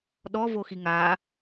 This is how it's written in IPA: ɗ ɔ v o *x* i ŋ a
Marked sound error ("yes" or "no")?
no